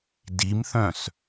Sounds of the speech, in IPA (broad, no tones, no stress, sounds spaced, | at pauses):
d i m θ œ̃ s